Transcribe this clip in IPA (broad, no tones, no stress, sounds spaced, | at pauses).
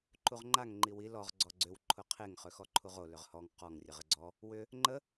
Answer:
ǃ u ʁ ŋ͡ǃ a ŋ ŋ͡ǃ i w i l ɔ ʁ ɡ͡ǀ ɔ ɡ͡ǀ ʏ w ǃʰ ʊ qʰ e ŋ χ ø x ɔ ǃʰ u ʁ o l ʏ ʁ h ɔ ŋ q ɔ ŋ rʲ ə ʁ ə ɡ͡ǀ ɔ | w ʏ | ŋ͡ǃ ə